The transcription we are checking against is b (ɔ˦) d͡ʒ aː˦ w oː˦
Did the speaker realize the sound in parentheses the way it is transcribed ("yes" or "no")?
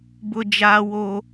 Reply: no